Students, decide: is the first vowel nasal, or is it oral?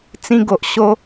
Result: nasal